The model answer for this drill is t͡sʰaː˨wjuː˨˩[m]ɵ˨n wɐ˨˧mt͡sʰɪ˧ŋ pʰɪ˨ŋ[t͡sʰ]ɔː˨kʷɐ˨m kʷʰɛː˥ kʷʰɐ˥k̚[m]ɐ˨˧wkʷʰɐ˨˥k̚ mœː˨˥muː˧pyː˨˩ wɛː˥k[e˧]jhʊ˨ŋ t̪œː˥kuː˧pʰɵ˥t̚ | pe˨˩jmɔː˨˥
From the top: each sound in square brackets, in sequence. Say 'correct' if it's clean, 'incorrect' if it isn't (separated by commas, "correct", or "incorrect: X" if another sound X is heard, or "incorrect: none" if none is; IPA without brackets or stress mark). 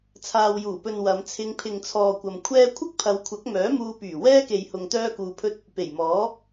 incorrect: p, correct, incorrect: pʰ, incorrect: e˨